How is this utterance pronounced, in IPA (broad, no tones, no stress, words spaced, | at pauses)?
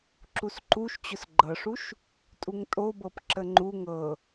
ǁusǃuʃ t͡ɕʊsɡ͡ǃɤʂuʃ | tʼuŋtʼobɤp ǁəŋ͡ǃu ŋɤ